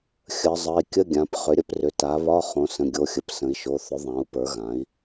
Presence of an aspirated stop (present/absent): absent